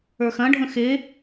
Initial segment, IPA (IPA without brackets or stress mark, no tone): ə˞